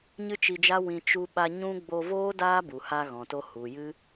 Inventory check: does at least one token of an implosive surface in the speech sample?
yes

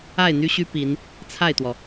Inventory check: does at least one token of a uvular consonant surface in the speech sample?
no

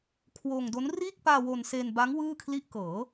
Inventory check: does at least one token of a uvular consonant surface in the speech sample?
no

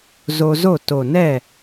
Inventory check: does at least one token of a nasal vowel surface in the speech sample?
no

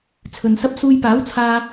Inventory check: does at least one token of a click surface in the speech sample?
no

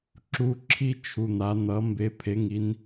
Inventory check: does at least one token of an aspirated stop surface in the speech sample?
yes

